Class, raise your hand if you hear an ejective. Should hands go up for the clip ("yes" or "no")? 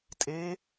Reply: yes